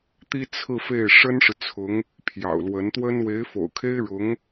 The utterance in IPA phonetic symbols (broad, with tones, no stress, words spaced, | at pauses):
t̪i˥t͡sʰɹ̩˥˧fe˥˩ɪ̯ ʂə˥nʂɻ̩˨t͡sʰʊ˧˥ŋ | pʰjɑ̰˨˩ʊ̯lwə˧˥nt̪wə˥n we˧˥ɪ̯fo̰˨˩ʊ̯kʰe˥ɪ̯ɻʊ˧˥ŋ